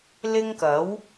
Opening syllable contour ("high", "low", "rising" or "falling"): high